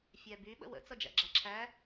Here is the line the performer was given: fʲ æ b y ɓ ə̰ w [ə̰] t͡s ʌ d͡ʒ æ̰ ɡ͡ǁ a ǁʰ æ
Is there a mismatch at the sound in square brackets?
no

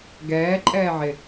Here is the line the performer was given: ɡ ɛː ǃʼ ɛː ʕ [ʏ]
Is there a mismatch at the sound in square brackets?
yes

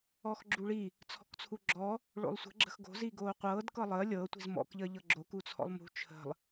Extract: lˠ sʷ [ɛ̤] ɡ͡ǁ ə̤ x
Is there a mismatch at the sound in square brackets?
yes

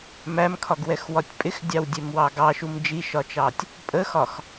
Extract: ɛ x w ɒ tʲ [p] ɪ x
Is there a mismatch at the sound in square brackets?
yes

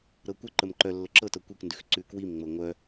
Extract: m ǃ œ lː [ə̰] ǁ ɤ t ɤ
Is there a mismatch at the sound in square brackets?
yes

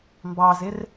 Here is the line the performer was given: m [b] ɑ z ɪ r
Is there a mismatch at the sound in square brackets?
no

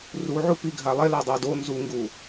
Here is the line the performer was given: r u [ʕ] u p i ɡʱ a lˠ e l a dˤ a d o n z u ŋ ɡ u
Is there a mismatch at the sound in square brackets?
no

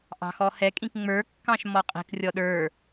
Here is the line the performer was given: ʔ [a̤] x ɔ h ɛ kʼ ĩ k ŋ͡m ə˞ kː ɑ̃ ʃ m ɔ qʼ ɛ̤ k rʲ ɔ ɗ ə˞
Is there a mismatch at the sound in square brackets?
yes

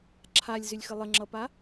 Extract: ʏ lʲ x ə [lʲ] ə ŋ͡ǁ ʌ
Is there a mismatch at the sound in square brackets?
yes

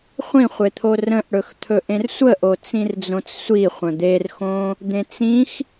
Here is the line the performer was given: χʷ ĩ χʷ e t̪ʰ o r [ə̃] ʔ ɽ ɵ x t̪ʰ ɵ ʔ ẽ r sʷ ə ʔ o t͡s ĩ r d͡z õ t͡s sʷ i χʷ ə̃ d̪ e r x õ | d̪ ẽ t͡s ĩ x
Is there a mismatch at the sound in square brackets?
no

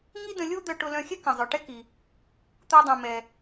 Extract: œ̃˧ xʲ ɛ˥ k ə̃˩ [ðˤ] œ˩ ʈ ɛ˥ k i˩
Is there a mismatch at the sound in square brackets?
yes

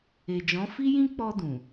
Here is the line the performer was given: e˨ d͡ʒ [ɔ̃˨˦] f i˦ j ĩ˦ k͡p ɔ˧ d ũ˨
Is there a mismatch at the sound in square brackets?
no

